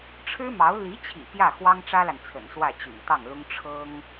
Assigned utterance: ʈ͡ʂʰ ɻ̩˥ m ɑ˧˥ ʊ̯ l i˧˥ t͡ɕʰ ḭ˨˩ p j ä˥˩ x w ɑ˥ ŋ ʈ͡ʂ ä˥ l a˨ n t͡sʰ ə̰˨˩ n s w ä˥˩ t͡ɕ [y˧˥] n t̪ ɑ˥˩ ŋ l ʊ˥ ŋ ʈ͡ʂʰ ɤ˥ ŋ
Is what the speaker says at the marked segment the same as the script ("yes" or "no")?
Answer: no